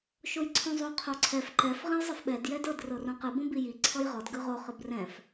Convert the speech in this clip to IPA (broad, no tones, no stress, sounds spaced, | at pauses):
ʃ o j ǀʰ ũ zˤ u qʰ o ǀʰ ɛ f ǃ ɛ f ʁ ɛ̃ j zˤ ɤ f ɓ ɛ d j ɛ d ɤ d r ɤ r õ q ɯ b õ b i j i ǀʰ ɔ j ʁ ɔ d ɡ ɯ ʁ o χ ɯ b r ɛ̃ f